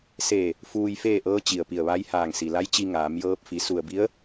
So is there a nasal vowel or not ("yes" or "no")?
no